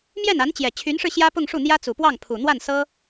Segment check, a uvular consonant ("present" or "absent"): absent